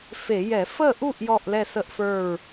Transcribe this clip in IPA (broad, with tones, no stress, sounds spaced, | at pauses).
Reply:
f e˧˩˧ j ɛ˧˩˧ f ə˥˨ ʔ u˥˨ ʔ j ɔ˥˨ ʔ l ɛ˥˨ s ə˥˨ ʔ f ə˞˥˨ ɹ